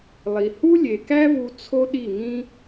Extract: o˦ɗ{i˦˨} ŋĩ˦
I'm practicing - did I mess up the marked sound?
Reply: no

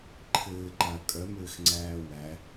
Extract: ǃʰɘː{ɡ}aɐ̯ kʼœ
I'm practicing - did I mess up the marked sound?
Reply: yes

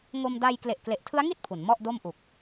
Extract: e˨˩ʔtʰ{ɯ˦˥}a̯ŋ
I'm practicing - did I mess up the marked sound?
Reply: no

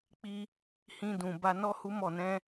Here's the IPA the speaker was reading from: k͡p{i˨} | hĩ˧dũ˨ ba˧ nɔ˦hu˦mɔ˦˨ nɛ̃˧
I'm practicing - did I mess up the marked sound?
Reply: yes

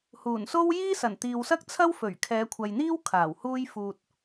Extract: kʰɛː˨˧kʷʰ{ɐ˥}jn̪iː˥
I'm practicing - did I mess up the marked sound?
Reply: yes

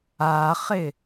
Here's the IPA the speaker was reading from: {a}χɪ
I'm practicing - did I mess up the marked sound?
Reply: no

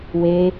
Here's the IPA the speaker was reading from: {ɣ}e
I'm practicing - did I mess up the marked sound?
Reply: yes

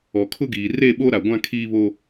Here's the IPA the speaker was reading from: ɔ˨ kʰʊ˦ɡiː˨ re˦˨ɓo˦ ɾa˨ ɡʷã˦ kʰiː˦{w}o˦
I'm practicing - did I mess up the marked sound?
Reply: yes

